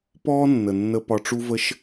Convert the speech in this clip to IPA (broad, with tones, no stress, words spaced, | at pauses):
pɔː˥nːə˩nːə˧ pɒ˧ʈ͡ʂu˥və˥ʃ